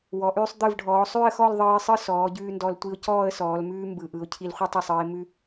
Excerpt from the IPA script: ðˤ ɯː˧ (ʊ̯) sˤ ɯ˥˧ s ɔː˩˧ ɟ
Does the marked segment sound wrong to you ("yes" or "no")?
yes